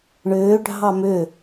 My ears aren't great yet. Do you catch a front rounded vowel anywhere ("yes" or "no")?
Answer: yes